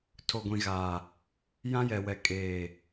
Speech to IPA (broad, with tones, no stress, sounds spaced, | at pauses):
tʰ o˨ ɡʷ ĩ˨ ɣ aː˨ | j ã˦ j ɛ˨ w ɛ˨ kʼ eː˨